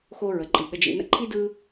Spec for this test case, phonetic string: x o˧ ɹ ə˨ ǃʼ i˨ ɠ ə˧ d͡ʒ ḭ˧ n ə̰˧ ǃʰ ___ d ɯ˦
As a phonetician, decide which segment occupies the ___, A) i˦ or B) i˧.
A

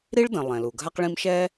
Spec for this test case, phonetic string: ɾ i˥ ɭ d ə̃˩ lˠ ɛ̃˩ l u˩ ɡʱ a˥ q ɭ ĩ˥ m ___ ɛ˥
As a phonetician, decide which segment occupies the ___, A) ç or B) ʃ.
B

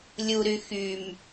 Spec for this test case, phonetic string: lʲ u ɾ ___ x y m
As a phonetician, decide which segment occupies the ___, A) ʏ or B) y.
B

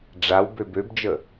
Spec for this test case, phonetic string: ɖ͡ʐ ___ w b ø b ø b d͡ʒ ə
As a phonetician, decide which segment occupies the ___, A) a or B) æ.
A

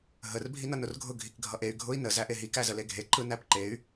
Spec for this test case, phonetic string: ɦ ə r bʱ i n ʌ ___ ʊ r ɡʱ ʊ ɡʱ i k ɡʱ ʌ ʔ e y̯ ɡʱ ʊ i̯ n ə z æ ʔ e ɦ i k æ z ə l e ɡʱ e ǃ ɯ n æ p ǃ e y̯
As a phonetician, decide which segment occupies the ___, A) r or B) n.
B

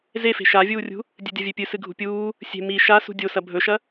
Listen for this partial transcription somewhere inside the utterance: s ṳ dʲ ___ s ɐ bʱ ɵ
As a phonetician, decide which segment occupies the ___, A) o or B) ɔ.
A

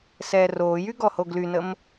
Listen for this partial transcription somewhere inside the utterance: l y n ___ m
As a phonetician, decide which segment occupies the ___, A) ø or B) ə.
B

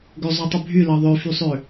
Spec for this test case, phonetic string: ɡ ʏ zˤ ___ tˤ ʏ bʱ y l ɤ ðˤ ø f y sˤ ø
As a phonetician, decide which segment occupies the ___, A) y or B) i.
A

